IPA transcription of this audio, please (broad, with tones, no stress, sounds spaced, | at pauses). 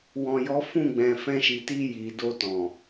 w ɔ̃˨ j ɔ˨˦ f ũ˦˨ ɡ͡b ɛ̃˨ f ɛ̃˧ ʃ i˨ t i˧ j i˨ d o˧ t ɔ̃˨